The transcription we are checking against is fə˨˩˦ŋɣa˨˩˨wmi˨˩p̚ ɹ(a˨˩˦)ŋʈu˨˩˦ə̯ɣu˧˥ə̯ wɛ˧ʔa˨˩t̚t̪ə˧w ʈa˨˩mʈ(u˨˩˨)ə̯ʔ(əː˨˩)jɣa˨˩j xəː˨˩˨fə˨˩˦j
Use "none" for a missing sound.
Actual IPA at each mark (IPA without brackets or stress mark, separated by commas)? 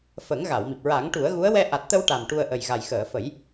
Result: a˨˩˦, u˧, ə˨˩